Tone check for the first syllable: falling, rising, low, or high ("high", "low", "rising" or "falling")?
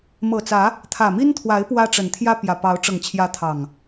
low